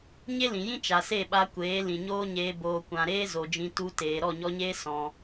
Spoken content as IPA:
ɲ e˦ l ĩ˨ j ĩ˦ t͡ʃ a˨ s e˦˨ ɓ a˧ kʷ eː˨˦ l ĩ˨ ɲ oː˦ ɲ eː˧ b oː˨ kʷ ã˨ ɾ eː˦ z o˨ d͡ʒ ĩ˧ t u˧ t eː˨ ɾ ɔ˦˨ ɲ ɔ˧ ɲ eː˦ s ɔ̃˧

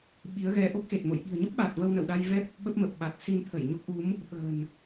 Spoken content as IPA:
ɓ i˨˦ ə̯ ɣ ɛ˧ ʔ o˦˥ k̚ x e˨˩ t̚ m o̰˧˨ j ɓ i̤˨˩ ə̯ ɲ ə˦˥ p̚ ɓ aː˨˩ t̚ v ə˧ w n ə̰˧˨ w ɗ a˧ j v ɛ˦˥ p̚ | ɓ ə˦˥ p̚ m ə˨˩ p̚ ɓ a˨˩ t̚ s i˧ n t̪ʰ ə˧˩ j ɲ o˦˥ k̚ ʔ u˨˦ m | ɓ ə̤ː˨˩ n

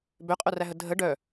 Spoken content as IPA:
b ø qʼ œ r æ ɦ ə dʱ ə ɖ œ

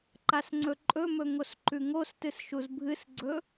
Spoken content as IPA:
ǃ a s ŋ͡ǀ ɵ ǃʼ ɵ m ɵ ŋ o s ǃ ʉ ŋ o s t ɨ s ʃ u z bʱ ɨ s ɡ͡ǀ ɵ

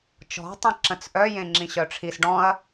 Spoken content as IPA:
t͡ʃ ɔ̤ tˤ ẽ ǁ ə̃ t͡s ʔ œ j ẽ ŋ͡ǁ ĩ ɕ œ ʈ͡ʂʰ i s ɖ ɔ̃ ɐ̯

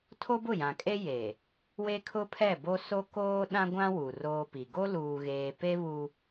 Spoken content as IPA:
tʰ o˦ b ʊ˦˨ j ã˨ kʼ e˦ j e˨ | w e˦ kʰ ʊ˦ pʰ ɛ˦˨ b o˦ s o˦ k oː˦ ɗ ã˦ ɡʷ ã˦ w u˨ r oː˦ p i˨ ɡ o˦ l uː˨ ɣ eː˨ p e˦ β u˦

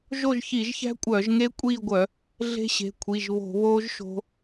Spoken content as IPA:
ʒ o˦˨ ʒ ç i˧˩˧ ʒ ç æ̤˦˥ kʷʼ œː˧˩˧ ʒ ŋ e˦˥ kʷʼ iː˦˨ ɡʷ œ˧˩˧ | ɮ e̤˦˥ ɕ e̤˩˧˩ kʷʰ i˩˧˩ ʒ β o̤˧˩˧ β oː˦˥ ʒ ʃ o̤˦˥

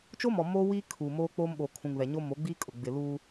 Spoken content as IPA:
t͡ʃ o˦ m ɔ˨ m oː˦ w iː˦ kʰ uː˨ m oː˦ k͡p oː˦ m ɓ oː˨ kʰ ũ˨ ŋ β ɛ˨ ɲ o˦ m o˨˦ ɡ͡b iː˦ kʼ ʊ˨ ɡ͡b ɪ˨ l uː˦

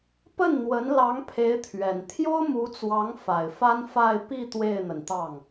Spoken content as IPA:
p ə˥˩ n n̪ w ə˧˥ n l ɑ˧˥ ŋ pʰ e˧˥ ɪ̯ t̪ʰ ɥ ɛ˨˩ n t̪ʰ j o˥ ʊ̯ m u˧˥ t͡s w ɑ˧˥ ŋ f a˨˩ ɪ̯ f a˥ n f a˥˧ ɪ̯ p i˥˧ t̪ w e˥˩ ɪ̯ n̪ ə˩ n t̪ ɑ˥˩ ŋ

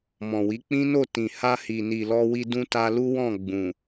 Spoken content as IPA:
m ɔ̃˨ w i˨˦ k͡p ĩ˦ n o˦˨ t ĩ˨ h a˧ h i˨ n i˨ l ɔ˧ w i˧ d ũ˦ t a˧ l u˦ w ɔ̃˦˨ ɡ͡b ũ˨

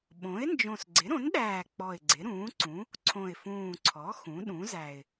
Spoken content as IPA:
ɓ õ˩˥ ɪ̯ n d͡ʒ õ˨˩ s ɡ͡ǀ ɪ˩˥ ɾ õ˩˥ n ɗ æː˨˩ k͡p ɔ˨˩ ɪ̯ ɡ͡ǀ ɪ˩˥ ɾ ũː˩˥ ǀ ũ˩˥ | ǀʰ õ˨˩ ɪ̯ f ũː˨˩ ǀʰ ɔ˩˥ x ũ˩˥ ɗ ũ˩˥ z æ˨˩ ɪ̯

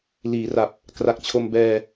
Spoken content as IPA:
l iː˩˦ r a˨˩ p̚ | k r a˨˩ k̚ t͡ɕʰ o˧ m b ɛː˧

